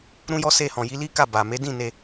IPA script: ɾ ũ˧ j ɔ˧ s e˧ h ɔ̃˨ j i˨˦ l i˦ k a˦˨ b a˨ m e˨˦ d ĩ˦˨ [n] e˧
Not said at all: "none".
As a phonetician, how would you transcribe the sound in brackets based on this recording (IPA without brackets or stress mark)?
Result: n